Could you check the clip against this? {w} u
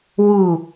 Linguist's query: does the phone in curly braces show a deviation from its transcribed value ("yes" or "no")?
no